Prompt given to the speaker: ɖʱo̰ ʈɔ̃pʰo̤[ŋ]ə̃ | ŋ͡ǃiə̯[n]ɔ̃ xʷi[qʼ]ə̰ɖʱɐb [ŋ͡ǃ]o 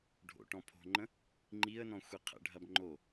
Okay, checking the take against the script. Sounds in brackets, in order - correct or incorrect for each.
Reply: incorrect: ŋ͡ǃ, correct, incorrect: qʰ, correct

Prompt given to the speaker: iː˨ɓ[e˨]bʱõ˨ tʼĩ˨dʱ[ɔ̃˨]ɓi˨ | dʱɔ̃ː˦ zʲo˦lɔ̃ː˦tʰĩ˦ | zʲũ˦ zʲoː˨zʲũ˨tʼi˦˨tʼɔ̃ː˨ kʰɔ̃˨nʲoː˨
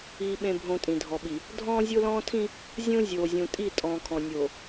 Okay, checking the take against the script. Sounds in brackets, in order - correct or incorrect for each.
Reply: incorrect: ẽ˨, incorrect: ɔ˨

